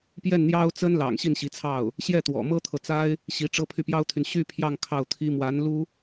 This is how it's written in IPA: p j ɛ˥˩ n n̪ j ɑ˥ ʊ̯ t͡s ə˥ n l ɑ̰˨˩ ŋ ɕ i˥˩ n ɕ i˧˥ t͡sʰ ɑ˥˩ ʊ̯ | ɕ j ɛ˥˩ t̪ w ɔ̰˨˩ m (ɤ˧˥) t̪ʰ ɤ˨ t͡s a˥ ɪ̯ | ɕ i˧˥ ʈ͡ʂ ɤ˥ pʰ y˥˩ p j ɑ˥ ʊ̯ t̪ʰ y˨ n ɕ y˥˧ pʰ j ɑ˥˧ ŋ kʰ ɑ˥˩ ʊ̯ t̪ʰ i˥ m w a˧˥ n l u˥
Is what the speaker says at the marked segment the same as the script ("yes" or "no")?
no